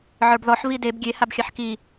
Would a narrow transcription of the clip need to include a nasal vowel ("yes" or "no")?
no